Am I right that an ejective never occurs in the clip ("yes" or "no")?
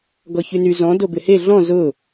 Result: yes